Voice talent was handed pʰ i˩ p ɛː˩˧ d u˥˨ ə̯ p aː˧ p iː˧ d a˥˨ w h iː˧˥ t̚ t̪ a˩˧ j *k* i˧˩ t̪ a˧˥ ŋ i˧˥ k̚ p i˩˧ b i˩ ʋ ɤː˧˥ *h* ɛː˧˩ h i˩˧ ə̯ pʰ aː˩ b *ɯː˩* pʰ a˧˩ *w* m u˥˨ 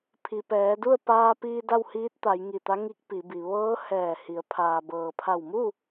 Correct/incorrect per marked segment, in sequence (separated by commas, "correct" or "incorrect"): incorrect, correct, incorrect, correct